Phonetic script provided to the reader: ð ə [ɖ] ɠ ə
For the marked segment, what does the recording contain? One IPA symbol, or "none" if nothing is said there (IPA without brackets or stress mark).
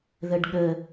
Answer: ɖ